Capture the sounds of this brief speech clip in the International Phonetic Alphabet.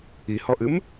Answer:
i h ɔ ʔ ɨ m

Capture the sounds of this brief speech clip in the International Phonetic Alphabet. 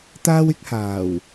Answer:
t̪ aː˥ w ɪ˥ k̚ h aː˨˩ w

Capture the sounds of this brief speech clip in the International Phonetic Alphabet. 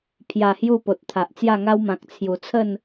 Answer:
pʰ j a˨˩ h j u˥˧ p o˨ t̚ t̪ʰ a˨ ʔ t͡s j a˥˧ ŋ a˦ w m ã˨ k̚ t͡sʰ j u˨˩ t͡sʰ ə˥˧ n

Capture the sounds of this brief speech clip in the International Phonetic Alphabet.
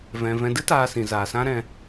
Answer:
v ɛ̃˨ v ɛ̃˨ d ɨ˦ t aː˧ s ĩ˨ z aː˨ s ã˦ ɾ ɛ̃˧

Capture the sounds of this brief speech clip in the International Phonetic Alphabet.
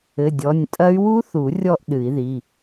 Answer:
ɘ˩˧˩ dʲ ɔ˩˧˩ nʲ tʼ ɐ˦˥ y̯ w u˦˥ θ u˨˩˦ rʲ ɔ˥˧ ʔ ɗ ɨ˨˩˦ i̯ ð i˩˧˩

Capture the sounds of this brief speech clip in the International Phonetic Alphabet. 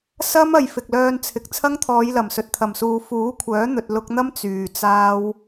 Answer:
s ɐ˥ m ɐ˨ j f ɪ˨ k̚ l œː˧ n t͡sʰ ɪ˨ k̚ t͡sʰ ɐ˥ ŋ t̪ʰ ɔː˨˧ j l ɐ˨˩ m s ɵ˨ t̚ t̪ʰ ɐ˨˩ m s uː˨ f uː˨˥ kʷʰ œː˨˥ n̪ ɵ˨ t̚ l ʊ˧ k̚ n̪ ɐ˥ m t͡s yː˨ t͡s aː˥ w

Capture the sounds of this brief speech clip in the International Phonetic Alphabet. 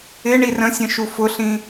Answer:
ɪ ɳ i r ə̃ sʲ ə̃ ʃ u f ʊ ɬ ĩ

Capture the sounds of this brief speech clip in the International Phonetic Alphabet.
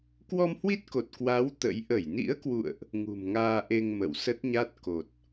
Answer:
k w ɔ˧ m h w i˦˥ t̚ k o˨˩ t̚ k w a˨˦ w t̪ ə̰˧˥ j ʔ ə˧˩ j n ḭ˧˥ ə̯ k w ṵ˧˨ ə̯ ʔ | ŋ ṳ˨˩ m ŋ aː˧ ʔ e˧ ŋ m ə̰˧˨ w s ə˦˥ t̚ ɲ a˦˥ t̚ k o˨˩ t̚

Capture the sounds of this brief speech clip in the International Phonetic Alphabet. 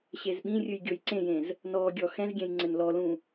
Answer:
ɕ e z ɓ ĩ rʲ ɨ j ɡʲ o j ǀ ẽ j ẽ z | n ɔ ɡʲ ɔ x ɛ̃ z ɡʲ ɛ̃ j ŋ͡ǀ ɘ n l ɔ l ũ

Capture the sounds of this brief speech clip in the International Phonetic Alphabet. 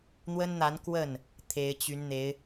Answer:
n̪ w ə˥ n n̪ a˧˥ n k w ə˥˩ n | t̪ʰ e˧˥ ɪ̯ t͡ɕ y˧˥ n n̪ e˧˥ ɪ̯

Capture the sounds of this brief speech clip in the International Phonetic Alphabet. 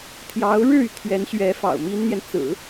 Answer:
t̪ʰ j ɑ˧˥ ʊ̯ ɻ ɻ̩˥˩ y˩ t̪ʰ ɥ ɛ˧˥ n ɕ ɥ ɛ˧˥ f ɑ̰˨˩ ʊ̯ m i˥ n n̪ j ɛ˨ n t͡s ɹ̩˨˩˦

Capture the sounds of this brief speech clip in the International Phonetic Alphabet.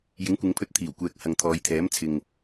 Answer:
j ɪ˨˥ ŋ kʷ ɪ˨˧ ŋ pʰ ɵ˧ t̚ t̪ʰ iː˨˩ w kʷ ɛː˨ k̚ h ɐ˨ ŋ t̪ʰ ɔː˨˧ j t̪ʰ ɛː˨˥ m t͡sʰ ɪ˨ ŋ

